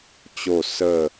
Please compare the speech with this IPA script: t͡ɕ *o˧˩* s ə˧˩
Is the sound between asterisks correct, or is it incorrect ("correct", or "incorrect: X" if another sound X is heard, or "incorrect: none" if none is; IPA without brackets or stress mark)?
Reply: correct